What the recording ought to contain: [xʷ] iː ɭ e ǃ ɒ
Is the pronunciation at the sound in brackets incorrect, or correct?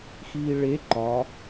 incorrect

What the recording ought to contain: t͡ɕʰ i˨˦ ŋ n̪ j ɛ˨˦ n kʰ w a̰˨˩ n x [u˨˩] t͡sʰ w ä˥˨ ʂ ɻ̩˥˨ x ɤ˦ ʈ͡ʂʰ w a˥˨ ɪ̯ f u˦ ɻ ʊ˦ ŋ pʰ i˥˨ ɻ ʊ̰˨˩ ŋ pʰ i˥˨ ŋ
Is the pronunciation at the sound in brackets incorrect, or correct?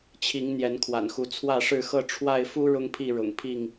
incorrect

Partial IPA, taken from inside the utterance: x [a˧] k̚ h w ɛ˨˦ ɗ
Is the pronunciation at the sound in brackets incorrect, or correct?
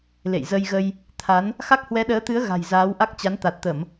incorrect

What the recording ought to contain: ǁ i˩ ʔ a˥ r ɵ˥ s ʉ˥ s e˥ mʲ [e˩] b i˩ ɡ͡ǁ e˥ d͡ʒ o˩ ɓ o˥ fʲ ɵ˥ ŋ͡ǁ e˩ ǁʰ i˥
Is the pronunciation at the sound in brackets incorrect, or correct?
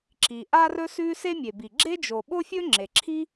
correct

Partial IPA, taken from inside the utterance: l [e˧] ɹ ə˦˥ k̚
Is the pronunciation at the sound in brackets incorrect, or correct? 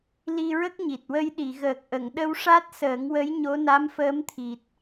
incorrect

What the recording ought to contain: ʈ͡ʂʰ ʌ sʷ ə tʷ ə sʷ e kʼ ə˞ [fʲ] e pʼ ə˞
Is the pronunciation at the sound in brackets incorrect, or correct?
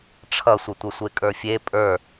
correct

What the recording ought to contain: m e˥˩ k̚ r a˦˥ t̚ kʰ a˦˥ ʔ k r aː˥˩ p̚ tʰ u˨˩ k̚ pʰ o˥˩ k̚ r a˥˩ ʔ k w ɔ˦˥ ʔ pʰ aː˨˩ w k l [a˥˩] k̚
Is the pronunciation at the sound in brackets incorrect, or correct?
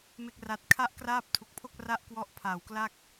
correct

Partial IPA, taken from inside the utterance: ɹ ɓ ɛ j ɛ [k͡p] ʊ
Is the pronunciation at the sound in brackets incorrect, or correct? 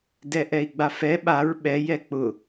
correct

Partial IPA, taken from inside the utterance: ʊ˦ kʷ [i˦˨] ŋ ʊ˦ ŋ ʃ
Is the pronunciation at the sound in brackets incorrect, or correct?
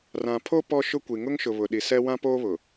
incorrect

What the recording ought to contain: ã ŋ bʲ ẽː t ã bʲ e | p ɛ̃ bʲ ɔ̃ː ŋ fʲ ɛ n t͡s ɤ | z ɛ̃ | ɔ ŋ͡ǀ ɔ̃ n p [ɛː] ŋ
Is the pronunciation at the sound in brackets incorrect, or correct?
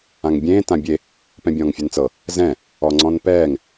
correct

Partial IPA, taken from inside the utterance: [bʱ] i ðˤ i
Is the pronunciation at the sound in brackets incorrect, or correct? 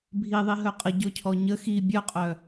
correct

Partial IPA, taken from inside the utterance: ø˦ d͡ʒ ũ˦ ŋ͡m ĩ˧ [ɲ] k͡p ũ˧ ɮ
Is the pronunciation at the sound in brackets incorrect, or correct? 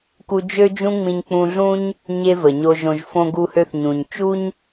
correct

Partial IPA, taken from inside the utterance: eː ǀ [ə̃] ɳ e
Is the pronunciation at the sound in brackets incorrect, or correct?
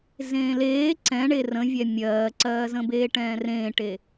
incorrect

